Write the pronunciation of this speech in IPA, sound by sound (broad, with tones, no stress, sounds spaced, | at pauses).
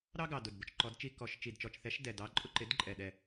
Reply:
ɾ ɑ˦ ɡ ɑ˨˩ d ʊ˨˩ d b ʊ˦ t͡ʃ ǃ ɔ˨˦ d t͡ʃ i˦ k ɔ˨˩ ʃ t͡ʃ i˨˩ d t͡ʃ ɔ˨˩ t͡ʃ θ ɛ˨˦ ʃ d ɛ˨˩ d ɑ˨˦ ǃʼ ʊ˦ ǃ ɪ˨˦ d ǃʼ ɛ˨˩ ɗ ɛ˨˩